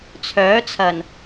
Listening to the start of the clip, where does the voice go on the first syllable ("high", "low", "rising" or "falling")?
rising